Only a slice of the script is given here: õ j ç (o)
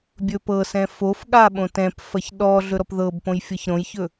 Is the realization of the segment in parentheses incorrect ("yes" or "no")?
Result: yes